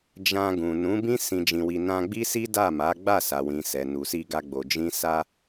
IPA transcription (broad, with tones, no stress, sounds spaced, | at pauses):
d͡ʒ ã˧ ɡ ũ˨ n ũ˨˦ b ĩ˦ s ĩ˧ d͡ʒ ĩ˧ w i˧ n ã˧ ɡ͡b i˦ s i˦ d a˦˨ m a˨˦ ɡ͡b a˦˨ s a˨ w ĩ˨ s ɛ˨ n u˨ s i˧ ɡ a˧ ɡ͡b o˨ d͡ʒ ĩ˧ s a˦